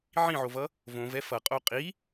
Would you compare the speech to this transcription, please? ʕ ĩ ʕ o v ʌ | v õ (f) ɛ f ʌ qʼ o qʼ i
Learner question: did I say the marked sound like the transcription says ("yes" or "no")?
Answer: no